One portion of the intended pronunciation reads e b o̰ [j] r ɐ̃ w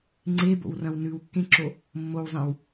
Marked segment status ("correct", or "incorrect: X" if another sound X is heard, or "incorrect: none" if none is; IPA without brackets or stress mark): incorrect: w